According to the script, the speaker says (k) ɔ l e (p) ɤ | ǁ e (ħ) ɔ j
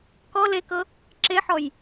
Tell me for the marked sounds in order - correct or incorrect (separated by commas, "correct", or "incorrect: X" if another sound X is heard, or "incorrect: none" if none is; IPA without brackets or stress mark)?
correct, incorrect: k, correct